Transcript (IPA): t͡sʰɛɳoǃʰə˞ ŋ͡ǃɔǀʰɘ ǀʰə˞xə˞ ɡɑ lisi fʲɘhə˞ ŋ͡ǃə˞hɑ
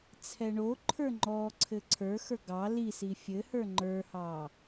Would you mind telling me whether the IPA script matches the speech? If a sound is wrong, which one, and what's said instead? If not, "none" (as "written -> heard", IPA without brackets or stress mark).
none